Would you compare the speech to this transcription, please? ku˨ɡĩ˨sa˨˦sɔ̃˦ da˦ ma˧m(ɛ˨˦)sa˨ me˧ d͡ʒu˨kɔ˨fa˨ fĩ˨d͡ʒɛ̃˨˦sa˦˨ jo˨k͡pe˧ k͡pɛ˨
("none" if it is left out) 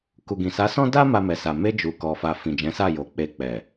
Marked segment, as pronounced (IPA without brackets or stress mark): ɛ˨